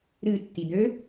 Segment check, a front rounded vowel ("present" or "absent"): present